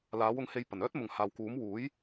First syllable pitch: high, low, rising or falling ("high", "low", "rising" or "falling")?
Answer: rising